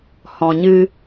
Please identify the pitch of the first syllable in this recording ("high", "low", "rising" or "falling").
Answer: low